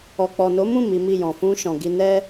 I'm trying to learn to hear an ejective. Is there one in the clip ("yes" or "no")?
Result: no